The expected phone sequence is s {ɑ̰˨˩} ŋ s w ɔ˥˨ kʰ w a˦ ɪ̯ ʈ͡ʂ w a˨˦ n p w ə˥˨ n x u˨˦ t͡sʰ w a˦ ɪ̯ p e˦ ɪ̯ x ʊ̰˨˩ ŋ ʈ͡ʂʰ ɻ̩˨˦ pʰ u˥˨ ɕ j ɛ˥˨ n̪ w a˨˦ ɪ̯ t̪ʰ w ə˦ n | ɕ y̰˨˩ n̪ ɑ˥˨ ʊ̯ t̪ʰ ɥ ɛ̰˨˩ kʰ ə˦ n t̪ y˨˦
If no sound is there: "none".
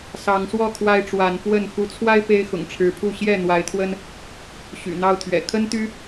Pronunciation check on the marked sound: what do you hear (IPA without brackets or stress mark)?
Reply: ɑ˨˦